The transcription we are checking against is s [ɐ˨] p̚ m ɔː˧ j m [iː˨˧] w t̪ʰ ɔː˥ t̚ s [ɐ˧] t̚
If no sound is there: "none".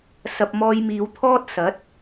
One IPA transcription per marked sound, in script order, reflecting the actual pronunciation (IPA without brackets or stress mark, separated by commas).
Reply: ɐ˨, iː˨˧, ɐ˨˥